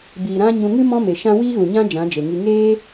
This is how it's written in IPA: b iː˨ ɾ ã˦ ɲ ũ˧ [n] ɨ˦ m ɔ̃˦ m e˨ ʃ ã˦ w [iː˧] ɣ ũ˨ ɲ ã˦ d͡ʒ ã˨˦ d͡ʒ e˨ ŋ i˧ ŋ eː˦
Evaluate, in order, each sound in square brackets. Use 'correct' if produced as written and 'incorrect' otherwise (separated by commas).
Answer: incorrect, incorrect